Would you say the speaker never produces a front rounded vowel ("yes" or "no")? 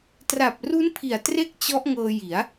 yes